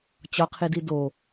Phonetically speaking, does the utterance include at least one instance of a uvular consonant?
yes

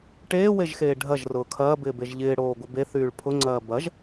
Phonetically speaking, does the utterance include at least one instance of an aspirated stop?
yes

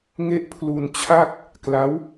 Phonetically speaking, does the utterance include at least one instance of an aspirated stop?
yes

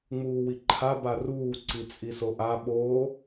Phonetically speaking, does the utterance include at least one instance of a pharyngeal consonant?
no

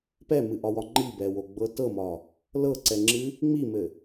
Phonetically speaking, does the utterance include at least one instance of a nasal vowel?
no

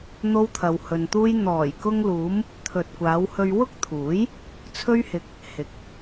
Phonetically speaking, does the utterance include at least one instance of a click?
no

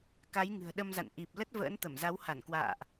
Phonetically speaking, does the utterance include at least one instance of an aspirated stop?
no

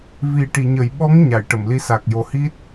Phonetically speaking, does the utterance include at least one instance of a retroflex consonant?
yes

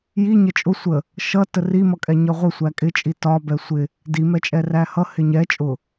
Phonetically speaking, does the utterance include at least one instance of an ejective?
yes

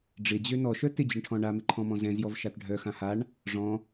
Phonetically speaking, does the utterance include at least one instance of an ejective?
no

